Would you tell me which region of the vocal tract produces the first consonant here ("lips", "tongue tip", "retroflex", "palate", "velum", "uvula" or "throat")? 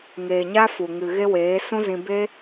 velum